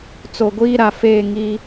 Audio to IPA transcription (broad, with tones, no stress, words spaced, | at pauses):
t͡so˨ɡʷiː˦ɾa˨ fe˦˨ŋi˦